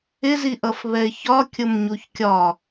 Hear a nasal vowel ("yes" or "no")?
no